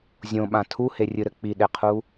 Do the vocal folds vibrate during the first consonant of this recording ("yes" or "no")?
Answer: yes